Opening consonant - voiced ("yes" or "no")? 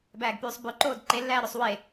yes